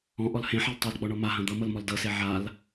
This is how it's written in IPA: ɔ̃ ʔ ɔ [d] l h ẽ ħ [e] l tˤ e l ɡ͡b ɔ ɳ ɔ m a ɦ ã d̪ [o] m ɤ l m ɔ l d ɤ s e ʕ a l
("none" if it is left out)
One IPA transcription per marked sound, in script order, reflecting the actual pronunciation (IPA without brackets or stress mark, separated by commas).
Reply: none, e, ɤ